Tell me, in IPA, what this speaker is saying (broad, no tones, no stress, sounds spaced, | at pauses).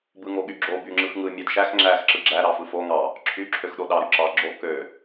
b ɯ ŋ o ɠ y ɡ͡ǁ o b y ŋ͡ǁ ɯ x ŋ ɯ mʲ æ d ʃ æ x ŋ͡ǁ æ x ǁ ɯ ɡ͡ǁ æ ɾ ɑ f ɯ f o ŋ ɑ | ǁʰ y ǁʰ ø x ɗ o ɗ ɑ ɾ y ǁ ɑ ɡ͡ǁ o k ø